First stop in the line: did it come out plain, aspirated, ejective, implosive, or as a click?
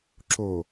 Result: click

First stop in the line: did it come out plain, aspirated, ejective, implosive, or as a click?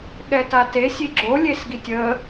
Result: implosive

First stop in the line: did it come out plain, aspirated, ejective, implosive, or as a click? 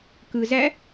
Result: plain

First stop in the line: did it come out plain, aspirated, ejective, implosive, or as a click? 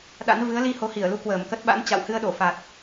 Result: implosive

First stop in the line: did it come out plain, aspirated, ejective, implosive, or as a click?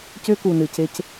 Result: plain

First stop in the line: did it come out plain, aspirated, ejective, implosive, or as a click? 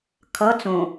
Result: aspirated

